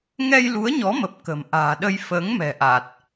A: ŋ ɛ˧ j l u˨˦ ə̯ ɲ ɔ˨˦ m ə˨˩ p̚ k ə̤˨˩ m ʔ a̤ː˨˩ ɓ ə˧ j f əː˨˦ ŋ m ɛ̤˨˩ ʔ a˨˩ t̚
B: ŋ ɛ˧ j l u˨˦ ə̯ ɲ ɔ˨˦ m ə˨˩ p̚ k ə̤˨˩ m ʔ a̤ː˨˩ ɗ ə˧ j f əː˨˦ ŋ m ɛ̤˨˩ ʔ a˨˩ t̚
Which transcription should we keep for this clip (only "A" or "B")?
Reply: B